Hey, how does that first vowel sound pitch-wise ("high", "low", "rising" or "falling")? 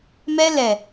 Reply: high